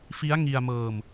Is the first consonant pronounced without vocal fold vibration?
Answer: yes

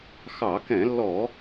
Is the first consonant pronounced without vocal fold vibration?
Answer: yes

